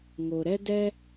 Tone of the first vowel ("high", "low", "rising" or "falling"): low